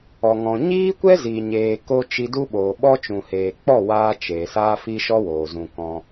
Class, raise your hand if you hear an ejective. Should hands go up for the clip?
no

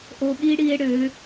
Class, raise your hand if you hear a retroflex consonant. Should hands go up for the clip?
yes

